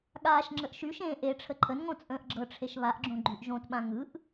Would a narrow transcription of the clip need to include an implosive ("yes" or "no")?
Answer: yes